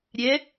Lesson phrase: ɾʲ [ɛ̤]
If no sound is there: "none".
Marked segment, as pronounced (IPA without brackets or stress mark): ɛ